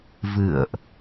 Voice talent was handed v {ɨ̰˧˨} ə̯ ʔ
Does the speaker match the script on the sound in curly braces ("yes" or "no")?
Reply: yes